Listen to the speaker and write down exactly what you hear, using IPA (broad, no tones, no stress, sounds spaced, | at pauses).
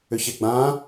ʏ ç e ɡ͡b ã